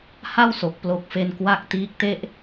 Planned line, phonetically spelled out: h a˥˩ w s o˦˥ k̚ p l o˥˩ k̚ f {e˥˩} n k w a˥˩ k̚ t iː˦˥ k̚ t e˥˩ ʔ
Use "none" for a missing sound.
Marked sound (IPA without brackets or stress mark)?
e˥˩